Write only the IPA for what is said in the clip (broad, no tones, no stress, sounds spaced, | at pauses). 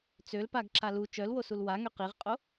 t͡s ø l p a ɡ ǁ a l u t͡ʃ œ l w o s u l w a ŋ ø q i ʁ qʼ o